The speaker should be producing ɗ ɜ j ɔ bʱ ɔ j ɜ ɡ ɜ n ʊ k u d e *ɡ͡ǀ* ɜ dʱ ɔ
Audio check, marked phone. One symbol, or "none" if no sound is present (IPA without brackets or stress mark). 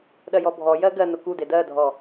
d